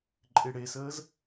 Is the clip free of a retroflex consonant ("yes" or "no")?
no